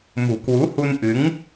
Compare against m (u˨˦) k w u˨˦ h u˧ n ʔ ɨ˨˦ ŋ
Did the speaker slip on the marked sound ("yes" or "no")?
yes